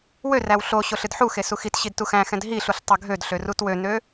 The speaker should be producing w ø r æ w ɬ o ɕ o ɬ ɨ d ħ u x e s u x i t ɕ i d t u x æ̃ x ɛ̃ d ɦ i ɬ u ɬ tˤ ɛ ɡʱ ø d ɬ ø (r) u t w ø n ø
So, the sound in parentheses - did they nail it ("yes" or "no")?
yes